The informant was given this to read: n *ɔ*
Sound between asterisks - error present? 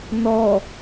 no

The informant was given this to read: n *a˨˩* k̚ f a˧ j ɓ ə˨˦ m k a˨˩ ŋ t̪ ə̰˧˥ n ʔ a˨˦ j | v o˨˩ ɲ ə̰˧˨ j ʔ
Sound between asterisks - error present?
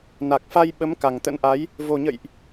no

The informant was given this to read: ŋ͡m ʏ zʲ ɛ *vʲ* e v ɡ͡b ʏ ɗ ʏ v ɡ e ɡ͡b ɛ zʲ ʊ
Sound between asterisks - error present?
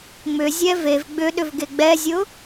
yes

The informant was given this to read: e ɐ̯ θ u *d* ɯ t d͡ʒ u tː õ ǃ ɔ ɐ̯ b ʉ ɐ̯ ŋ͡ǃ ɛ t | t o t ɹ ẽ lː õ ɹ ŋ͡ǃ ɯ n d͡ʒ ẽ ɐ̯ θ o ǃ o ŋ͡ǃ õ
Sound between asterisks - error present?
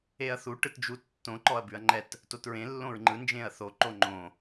yes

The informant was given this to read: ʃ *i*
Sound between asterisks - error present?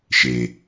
yes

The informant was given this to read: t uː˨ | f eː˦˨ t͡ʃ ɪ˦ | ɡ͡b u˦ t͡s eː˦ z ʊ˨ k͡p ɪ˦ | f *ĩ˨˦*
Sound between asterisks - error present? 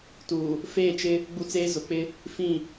yes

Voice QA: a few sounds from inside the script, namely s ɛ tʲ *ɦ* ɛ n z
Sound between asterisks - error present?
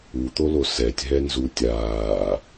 no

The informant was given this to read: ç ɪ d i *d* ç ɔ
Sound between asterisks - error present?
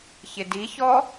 yes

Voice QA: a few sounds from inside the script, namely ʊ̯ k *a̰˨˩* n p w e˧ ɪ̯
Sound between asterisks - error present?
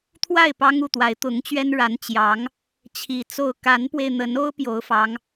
yes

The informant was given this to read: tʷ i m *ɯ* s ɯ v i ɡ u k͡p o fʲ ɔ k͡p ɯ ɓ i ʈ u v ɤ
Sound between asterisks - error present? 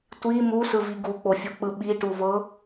yes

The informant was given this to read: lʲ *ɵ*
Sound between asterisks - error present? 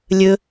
no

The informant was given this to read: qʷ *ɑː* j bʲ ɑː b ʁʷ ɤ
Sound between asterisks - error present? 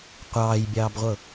no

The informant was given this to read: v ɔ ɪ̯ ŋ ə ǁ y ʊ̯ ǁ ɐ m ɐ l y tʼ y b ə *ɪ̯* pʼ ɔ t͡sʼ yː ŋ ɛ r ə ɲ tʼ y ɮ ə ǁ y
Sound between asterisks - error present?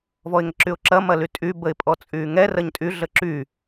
no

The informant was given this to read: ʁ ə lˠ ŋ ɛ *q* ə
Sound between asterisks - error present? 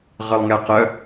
no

